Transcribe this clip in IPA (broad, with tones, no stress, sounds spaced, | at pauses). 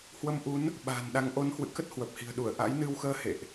h w ə˧ m ʔ u˨˦ n | ɓ a̤ː˨˩ n ɗ a˨˦ ŋ ʔ o˨˦ n h w ɨ̰˧˨ k ə˦˥ t̚ h w ə˨˩ p̚ h i̤˨˩ ə̯ ɗ u˧˩ ə̯ ʔ a̰˧˥ j n ɨ˧ w x əː˧ h ḛ˧˨ ʔ